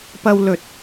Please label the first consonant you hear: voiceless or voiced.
voiceless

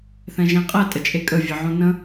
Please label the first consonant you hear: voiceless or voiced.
voiceless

